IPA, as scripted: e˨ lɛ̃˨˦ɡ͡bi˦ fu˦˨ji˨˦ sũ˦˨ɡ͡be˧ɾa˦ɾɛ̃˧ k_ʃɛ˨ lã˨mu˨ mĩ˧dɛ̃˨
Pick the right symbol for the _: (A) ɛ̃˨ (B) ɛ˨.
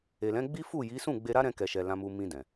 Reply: B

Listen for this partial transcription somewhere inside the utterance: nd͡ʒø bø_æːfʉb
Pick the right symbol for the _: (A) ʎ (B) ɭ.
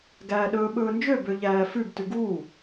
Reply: A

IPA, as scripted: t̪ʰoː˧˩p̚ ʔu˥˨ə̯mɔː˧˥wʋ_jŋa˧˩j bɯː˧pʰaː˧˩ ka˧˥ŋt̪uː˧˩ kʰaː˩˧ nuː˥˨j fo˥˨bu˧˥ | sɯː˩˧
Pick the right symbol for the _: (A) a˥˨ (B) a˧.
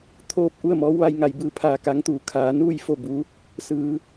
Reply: B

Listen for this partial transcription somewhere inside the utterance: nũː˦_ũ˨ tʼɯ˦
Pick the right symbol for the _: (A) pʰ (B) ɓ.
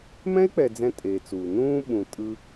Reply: B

